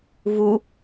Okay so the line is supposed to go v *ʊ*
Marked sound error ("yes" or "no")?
yes